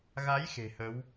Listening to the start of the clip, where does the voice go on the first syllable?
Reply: rising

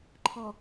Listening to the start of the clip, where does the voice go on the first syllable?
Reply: low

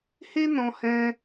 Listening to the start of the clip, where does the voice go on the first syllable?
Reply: high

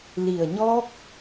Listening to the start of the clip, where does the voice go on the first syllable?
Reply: low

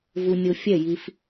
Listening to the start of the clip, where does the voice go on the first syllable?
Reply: high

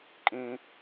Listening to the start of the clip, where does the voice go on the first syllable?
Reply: high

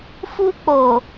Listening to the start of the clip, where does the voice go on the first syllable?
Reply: high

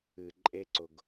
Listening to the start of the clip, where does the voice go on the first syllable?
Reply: low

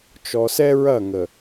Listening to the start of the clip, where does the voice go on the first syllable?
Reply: low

